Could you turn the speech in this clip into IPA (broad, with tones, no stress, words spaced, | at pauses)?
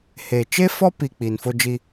he˨t͡ʃe˦fɔ˦ pi˨ k͡pi˨nfo˦d͡ʒi˦